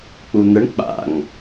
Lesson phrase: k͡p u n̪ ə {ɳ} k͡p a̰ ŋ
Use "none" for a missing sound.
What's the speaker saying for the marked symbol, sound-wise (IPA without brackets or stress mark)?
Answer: ɳ